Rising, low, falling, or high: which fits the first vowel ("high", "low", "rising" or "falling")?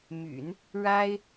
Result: low